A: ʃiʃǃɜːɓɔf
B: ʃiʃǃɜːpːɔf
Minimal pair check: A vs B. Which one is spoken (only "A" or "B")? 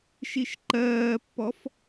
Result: B